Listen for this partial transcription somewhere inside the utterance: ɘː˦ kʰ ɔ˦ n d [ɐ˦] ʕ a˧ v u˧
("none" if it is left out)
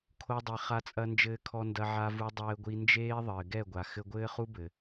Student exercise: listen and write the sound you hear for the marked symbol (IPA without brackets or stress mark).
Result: ɐ˧